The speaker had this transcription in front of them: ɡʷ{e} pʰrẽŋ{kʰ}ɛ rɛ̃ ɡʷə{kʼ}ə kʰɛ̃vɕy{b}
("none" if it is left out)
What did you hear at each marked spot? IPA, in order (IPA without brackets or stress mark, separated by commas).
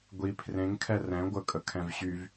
i, kʰ, kʼ, v